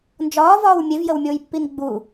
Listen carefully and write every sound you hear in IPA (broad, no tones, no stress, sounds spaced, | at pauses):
n d͡ʒ ɒː v ɒː w mʲ e v j ə w mʲ oː j pː i n ɡ͡b u